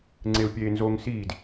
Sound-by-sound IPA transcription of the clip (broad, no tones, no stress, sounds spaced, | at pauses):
ŋ͡ǀ e u̯ pʲ eː n z oː ŋ s iː d